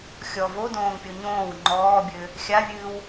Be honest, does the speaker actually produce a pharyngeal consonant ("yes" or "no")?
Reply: no